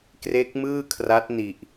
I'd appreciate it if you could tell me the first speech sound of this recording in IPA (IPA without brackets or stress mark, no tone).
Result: k